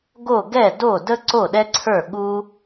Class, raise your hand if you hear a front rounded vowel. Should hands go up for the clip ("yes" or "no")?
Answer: no